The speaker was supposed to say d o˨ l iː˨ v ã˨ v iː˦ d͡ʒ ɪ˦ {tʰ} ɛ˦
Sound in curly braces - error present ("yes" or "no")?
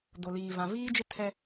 no